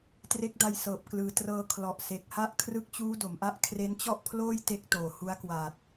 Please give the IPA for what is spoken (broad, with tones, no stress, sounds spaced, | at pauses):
t r e˦˥ k̚ d a˧ j s ɤː˨˩ p̚ k l ɯː˨˩ t r ɤː˧ kʰ l ɔ˨˩ ʔ s e˨˩ k̚ h a˥˩ ʔ kʰ r ɯ˦˥ k̚ t͡ɕ uː˦˥ d o˩˦ m ʔ a˦˥ ʔ kʰ r e˦˥ n t͡ɕ ɔ˥˩ ʔ pʰ l oː˥˩ j t e˦˥ k̚ t oː˨˩ h u˦˥ a̯ k w a˨˩ t̚